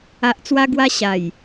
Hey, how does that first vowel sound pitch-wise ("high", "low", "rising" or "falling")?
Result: low